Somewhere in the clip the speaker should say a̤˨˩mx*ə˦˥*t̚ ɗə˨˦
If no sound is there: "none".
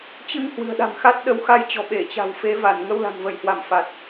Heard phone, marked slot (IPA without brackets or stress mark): a˦˥